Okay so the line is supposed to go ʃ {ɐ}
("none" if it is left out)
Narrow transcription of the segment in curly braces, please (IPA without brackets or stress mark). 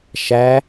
æ